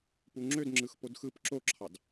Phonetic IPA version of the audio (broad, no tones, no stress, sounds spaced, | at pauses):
p u ŋ͡ǁ ø d ŋ͡ǁ ɯ x p o d x ɯ p ǁ o ǁʰ ɑ d